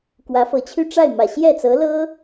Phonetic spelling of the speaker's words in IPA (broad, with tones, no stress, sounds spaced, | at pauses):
k w ä˧˥ f ɤ˧˥ t͡ɕʰ y˥˧ ʈ͡ʂ a˥˩ ɪ̯ m ä˨˩ ɕ j ɛ˥˩ t͡s ɤ˧˥ l ɤ˥